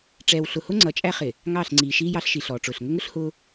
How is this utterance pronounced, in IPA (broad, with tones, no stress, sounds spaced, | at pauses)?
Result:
ʈ͡ʂ ɛː˨ w ɬ ʊ˨ h ʊ˦ ŋ͡ǀ ʌ˨ t͡ʃʼ æ˦ χ ɪ˨ | ŋ ɑː˦˨ ɬ ŋ͡ǀ iː˨ ʃ iː˦ j ɑ˦ ɬ ʃ i˨ ɬ ɔː˨ ʈ͡ʂ ʊː˨ ɬ ŋ ə˦ ŋ ʊ˦ ɬ h ʊː˦